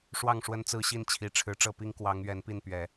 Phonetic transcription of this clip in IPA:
ʂ w ɑ˥˨ ŋ ʂ w ə˦ n t͡s ɹ̩˦ ɕ i˥˨ n t͡ɕʰ i˨˩ ʈ͡ʂʰ ɻ̩˨˦ ʈ͡ʂ ɤ˥˨ p i˦ ŋ k w ɑ˨˦ ŋ ɥ ɛ˨˦ n p i˥˨ n p ɥ ɛ˨˩

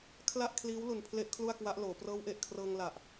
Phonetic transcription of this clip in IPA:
kʰ l a˥˩ ʔ kʰ l iː˦˥ w l u˨˩ n pʰ l e˥˩ ʔ kʰ l u˥˩ a̯ k w a˦˥ ʔ l oː˩˦ p r ɤː˦˥ w ʔ e˨˩ ʔ kʰ r ɤː˧ ŋ l a˨˩ ʔ

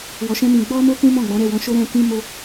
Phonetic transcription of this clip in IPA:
w ɔ˧ ʃ ɛ̃˦ m ĩ˧ ɡ͡b ɔ˦ m o˦ k ũ˦ m ɔ̃˦˨ ɡ͡b ɔ̃˨˦ ɾ ɛ˦˨ w ɔ̃˧ ʃ o˦ ɾ ɛ̃˧ k ĩ˦ m o˦

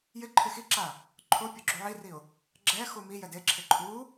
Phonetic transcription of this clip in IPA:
j ɪ ǃʰ ɪ x i ǁ a | ǃʰ o pʲ o ɡ͡ǁ u ʕ i r i ʊ̯ | ɡ͡ǁ ɛ x u m i j ɛ d e ǁʰ ɪ ǃʰ u

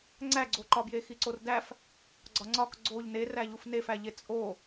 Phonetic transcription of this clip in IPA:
ŋ͡ǀ æ ɡ͡ǀ o ǃ ɒ b j e x i ǀ o r d æ f | ɡ͡ǀ ɒ ŋ͡ǀ ɒ k ɡ͡ǀ o ʎ n e r æ ʎ u f n e f æ ʎ e t͡sʼ o

